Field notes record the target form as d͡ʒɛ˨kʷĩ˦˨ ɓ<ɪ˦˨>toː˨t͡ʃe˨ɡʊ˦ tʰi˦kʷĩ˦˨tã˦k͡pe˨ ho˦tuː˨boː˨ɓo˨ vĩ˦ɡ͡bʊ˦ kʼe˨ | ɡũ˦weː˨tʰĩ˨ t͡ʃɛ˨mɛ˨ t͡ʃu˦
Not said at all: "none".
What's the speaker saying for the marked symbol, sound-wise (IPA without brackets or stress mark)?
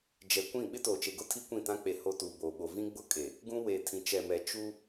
ɪ˦